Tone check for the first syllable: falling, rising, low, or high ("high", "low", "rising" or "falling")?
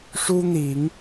high